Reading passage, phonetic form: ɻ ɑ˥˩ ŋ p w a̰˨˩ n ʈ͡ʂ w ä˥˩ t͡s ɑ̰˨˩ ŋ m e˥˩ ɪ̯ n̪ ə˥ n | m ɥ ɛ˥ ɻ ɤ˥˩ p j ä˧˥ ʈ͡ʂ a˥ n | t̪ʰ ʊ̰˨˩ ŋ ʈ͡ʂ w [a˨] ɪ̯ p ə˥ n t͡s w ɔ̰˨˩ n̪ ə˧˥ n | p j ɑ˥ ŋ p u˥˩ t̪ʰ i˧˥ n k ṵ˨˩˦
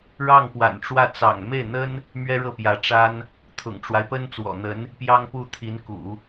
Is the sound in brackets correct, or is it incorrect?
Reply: incorrect